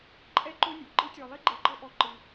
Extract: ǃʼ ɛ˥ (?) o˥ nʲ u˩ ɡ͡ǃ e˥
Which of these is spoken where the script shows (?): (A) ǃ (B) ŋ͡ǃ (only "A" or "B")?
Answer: A